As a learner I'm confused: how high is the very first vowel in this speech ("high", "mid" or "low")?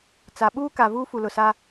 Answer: low